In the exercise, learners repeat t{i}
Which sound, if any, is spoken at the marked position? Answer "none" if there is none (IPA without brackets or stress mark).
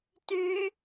y